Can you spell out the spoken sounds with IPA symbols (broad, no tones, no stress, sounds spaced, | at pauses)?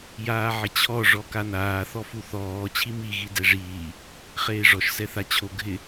j aː ʕ ɪ t͡ɕʰ ɔ ʐ ɔ k a n aː θ ɔ f u θ ɔː t͡ɕʰ i m i ɣ i d ɛ ʐ iː | χ eː ʐ ɔ ʃ s ɛ θ a t͡ɕʰ o ɡʱ ɪ